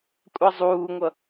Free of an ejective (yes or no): no